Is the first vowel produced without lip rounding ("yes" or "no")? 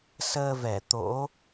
yes